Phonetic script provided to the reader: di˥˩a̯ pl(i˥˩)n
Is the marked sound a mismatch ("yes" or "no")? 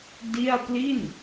no